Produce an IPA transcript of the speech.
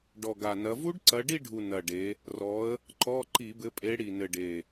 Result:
ɖ ɔ˨˩ ɡ a˨˩ n ɐ˨˦ v u˦˥ ɖ ǀ ɐ˨˦ ɖ i˥˧ ɖʱ u˨˩ n ɐ˨˩ ɖ e˨˦ | r ɔ˨˦ ə̯ | ǃ ɔ˧˥˧ ǃ i˧˩˧ b ɘ˨˦ pʼ e˨˦ ɽ i˨˩ n ɘ˨˩ ɖ e˨˩

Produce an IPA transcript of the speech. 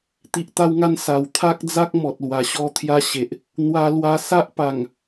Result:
t̪ i˨ ʔ t̪ a˧ w ŋ a˧ n s a˨˩ w t̪ʰ a˦ k̚ d͡z a˦ k̚ m ɔ˨ t̚ l w a˨˩ ɕ ɔ˧ t̪ʰ j a˧ ɕ e˨ ʔ | n̪ w a˧ l w a˧ s a˦ ʔ p a˨˩ ŋ

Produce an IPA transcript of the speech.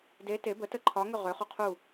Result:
d e t e b ə t ə ǃʰ ɒ ŋ ø ʁ ø χ u qʰ u

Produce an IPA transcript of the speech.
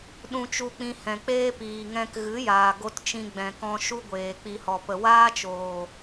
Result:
ɗ ũ˧ t͡ʃ u˧ k͡p ĩ˧ h ɛ̃˨ k͡p eː˦ p iː˨ ŋ ɛ̃˧ k ɣ ɨ˨˦ j aː˨ ɡ o˧ t t͡ʃ ĩ˧ ɡ͡b ɛ̃˨ k ɔ̃˧ ʃ u˦ ɡʷ eː˨ k͡p i˨ h ɔ˨ p ə˨ w aː˦ t͡ʃ oː˨

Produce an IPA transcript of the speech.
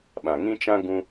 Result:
ɓ ã˨ ŋ ĩ˦ t͡ʃ ã˦ ɡ ũ˧

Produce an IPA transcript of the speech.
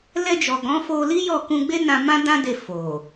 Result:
l ɛ˧ d͡ʒ ɔ˨ ɡ ɔ̃˨˦ f o˧ l i˦ j ɔ˦˨ k ũ˧ ɡ͡b e˦ n ã˧ m ã˦ d ã˦ d e˧ f o˨

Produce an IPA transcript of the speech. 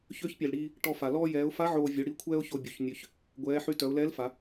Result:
ç ø˧˥ ç pʲ ɛ˩ l ɽ iː˧ | ʈ ɔ˧ f a˩ l ɔː˧ j ɛː˩˧ ʊ̯ f a˧˥ ʕ oː˧ vʲ u˩˧ ɽ i˧˥ kʷʰ ɛː˥ ʊ̯ ç o˧ bʲ u˩ ç nʲ ø˧ ç | ɡʷ ɛː˩˧ ħ y˧ t œ˩˧ ʊ̯ l ɛː˧˥ l f a˩˧

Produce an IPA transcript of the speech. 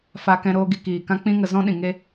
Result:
f a˧ k ɛ̃˧ ɾ oː˧ ɡ i˧ k iː˨ k ã˦ k͡p ĩ˦ ŋ ə˧ z ɔ̃˦ ɗ ĩ˨ ŋ e˦

